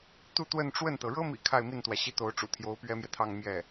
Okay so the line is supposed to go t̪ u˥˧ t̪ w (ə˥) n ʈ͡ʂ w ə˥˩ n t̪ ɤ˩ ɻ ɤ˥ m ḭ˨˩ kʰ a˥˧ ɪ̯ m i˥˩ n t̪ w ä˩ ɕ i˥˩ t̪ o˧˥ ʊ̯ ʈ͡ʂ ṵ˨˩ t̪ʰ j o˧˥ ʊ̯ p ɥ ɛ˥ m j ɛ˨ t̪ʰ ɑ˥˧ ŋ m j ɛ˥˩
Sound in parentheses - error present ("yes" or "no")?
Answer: yes